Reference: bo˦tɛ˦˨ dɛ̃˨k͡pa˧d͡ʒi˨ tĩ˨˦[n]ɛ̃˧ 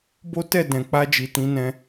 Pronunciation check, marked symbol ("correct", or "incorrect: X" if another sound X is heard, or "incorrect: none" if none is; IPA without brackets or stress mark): correct